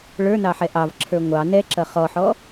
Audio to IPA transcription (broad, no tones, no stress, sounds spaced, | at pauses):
ɭ ə˞ n ɑ ħ ɛ ʔ ɑ v ǁʰ ə˞ ŋʷ ɑ n ɛ ǁ ʌ χ ɔ ħ ɔ